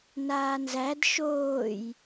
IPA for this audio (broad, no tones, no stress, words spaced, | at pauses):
naːnzæd ʃoːj